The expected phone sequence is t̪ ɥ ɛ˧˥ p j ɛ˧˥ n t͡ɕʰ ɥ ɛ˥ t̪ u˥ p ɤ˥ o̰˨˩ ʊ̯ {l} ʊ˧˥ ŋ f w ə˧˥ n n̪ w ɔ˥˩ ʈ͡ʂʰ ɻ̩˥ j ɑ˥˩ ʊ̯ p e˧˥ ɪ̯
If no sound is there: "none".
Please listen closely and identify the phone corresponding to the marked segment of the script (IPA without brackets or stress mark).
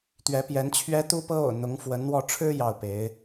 n̪